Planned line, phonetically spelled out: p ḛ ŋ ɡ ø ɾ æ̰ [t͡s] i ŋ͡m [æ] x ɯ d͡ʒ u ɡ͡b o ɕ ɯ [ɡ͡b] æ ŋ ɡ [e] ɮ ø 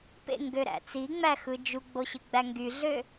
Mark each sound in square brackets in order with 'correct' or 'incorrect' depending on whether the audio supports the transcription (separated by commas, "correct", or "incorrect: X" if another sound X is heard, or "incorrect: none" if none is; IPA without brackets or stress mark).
correct, correct, correct, incorrect: y